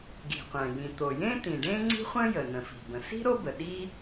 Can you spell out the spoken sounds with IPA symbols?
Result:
ɡ i̤˩ qʷ æ̃˩ j ĩ˩ t̪ o˩ j ẽ˥ t̪ ĩ˩ ɖ ẽ˥ ŋ͡ǀ i̤˥ χʷ ə̃˥ j ə˩ n ə̃˩ f i̤˩ b ə̃˩ s i̤˥ ɾ o˥ b ə˩ ɗ i˥

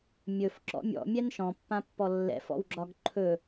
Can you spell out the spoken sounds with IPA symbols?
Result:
mʲ ɵ f ǁ ɔ̰ mʲ ɔ̰ mʲ ɛ n ʃ ɔ̃ pː ã pː ɔ lː ɛ̰ f ɔ̰ w ɡ͡ǁ ɒ ɡ ǃʰ ɵ

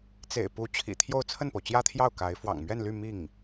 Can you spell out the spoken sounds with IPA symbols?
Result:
t͡s ḛ˨˩ ɪ̯ p u˧˥ t͡ɕʰ ḭ˨˩ t̪ʰ j o˥˧ ʊ̯ t͡sʰ ə˥˩ n p o˩ ʊ̯ t͡ɕ j ä˥ t̪ʰ j ɑ˥˩ ʊ̯ k a˧˥ ɪ̯ f w ɑ̰˨˩ ŋ m ɥ ɛ˥˧ n l y˥˧ m i˥˩ ŋ

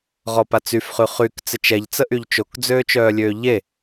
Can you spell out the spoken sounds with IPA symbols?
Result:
ʁ ɔ p a t͡s y f χ y χ y k t͡s ɪ t͡ʃ ɛ ʎ t͡s ə ʔ y ʎ t͡ʃ o k d͡z øː t͡ʃ œː lʲ øː ʎ e

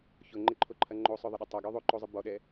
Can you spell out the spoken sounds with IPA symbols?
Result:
ç ʊ ŋ͡ǃ ɪ ǃʰ o ǃʰ ɐ ŋ͡ǃ o sˤ œ ðˤ ɪ ɗ ɐ tˤ ɐ ɡ œ ðˤ o ǃ o zˤ ɪ b ɔ ɗ ɛ

